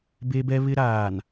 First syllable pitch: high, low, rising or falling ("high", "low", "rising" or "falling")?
high